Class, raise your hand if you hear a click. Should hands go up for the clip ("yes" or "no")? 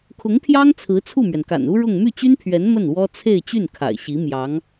no